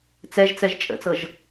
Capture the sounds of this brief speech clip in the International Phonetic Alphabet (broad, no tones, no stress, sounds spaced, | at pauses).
t͡s ɛ ʒ t͡s ɛ ʒ t͡ʃʼ ə̰ t͡s ɤ ʒ